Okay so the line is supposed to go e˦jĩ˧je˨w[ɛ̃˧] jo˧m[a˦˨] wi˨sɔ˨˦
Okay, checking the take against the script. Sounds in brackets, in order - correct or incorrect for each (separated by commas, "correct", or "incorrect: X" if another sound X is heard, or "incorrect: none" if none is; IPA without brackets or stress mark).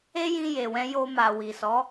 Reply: correct, incorrect: a˨